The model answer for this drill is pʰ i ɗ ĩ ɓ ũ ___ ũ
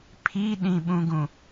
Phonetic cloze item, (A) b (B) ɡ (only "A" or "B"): B